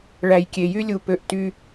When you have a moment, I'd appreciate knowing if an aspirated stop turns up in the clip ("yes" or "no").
no